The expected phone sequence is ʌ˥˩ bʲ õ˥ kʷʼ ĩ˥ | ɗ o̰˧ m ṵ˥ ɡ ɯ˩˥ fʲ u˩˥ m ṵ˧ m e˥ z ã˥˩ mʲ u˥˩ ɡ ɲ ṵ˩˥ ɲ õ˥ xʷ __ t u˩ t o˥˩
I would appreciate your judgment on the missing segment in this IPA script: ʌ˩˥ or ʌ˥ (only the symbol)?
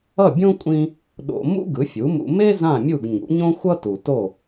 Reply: ʌ˥